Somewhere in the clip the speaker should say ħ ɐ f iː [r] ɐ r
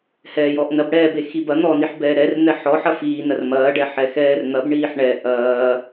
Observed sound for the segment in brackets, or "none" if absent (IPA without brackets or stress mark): n